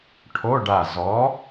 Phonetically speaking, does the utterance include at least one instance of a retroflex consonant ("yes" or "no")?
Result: yes